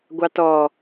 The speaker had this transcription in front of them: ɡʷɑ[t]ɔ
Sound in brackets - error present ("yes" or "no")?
no